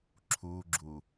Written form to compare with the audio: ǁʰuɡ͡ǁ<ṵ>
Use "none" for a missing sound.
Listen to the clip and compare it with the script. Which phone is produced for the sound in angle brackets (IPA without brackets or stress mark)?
u